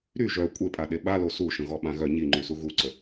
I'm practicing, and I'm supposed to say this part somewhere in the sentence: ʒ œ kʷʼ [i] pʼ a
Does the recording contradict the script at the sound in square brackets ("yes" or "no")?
yes